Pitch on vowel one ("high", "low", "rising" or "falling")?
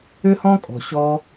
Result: high